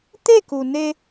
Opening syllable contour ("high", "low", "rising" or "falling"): falling